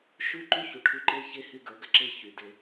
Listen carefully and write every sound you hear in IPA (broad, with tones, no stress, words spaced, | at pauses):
ʃʉ˦ǃy˦ çu˨ʈʰʉ˦ ǃe˦çe˦ hy˦ɡə˞˨˦ɡə˨ ǁe˦ çy˨de˦